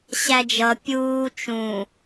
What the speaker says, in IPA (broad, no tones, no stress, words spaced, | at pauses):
ɕæd͡ʒʌ pʲuː t͡ʃũ